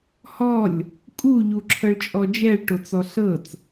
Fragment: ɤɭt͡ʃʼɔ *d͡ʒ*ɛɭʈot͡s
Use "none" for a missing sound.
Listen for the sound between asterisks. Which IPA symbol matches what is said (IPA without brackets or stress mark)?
d͡ʒ